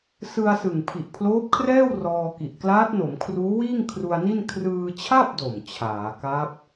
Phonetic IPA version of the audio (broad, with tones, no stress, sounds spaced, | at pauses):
s ɯ˧ a̯ s ɯ˨˩ ŋ pʰ i˨˩ ʔ pʰ l oː˦˥ p̚ kʰ r ɛː˥˩ w r ɔː˧ k i˨˩ ʔ k l aː˦˥ t̚ n o˩˦ m kʰ r uː˦˥ w iː˥˩ ŋ kʰ r u˧ a̯ n i˥˩ n kʰ r ɯː˧ t͡ɕʰ a˥˩ p̚ d o˨˩ m t͡ɕʰ aː˩˦ k a˦˥ p̚